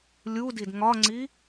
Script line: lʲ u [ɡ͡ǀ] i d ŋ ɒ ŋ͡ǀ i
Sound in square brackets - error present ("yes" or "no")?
yes